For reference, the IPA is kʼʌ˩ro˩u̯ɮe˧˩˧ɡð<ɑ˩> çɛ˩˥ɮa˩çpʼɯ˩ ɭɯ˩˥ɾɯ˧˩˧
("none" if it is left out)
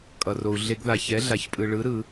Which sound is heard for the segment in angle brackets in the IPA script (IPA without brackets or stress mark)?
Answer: a˩